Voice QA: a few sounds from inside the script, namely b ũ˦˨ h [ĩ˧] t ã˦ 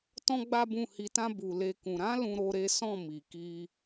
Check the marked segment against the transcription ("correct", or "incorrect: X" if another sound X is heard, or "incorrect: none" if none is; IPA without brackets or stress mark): incorrect: i˧